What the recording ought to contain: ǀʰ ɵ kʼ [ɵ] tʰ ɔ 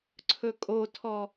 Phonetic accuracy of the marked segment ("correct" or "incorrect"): incorrect